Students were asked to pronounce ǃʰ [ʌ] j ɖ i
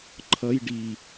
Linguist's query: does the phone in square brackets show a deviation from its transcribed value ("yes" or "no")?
no